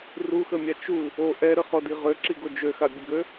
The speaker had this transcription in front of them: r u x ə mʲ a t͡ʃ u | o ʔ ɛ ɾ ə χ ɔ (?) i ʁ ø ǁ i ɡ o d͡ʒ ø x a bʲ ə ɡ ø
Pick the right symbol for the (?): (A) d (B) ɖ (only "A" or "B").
A